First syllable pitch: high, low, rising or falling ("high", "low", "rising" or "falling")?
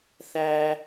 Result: low